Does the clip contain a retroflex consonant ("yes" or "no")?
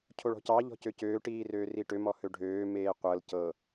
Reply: yes